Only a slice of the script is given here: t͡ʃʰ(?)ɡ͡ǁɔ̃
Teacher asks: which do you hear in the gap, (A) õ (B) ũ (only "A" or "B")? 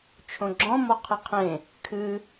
A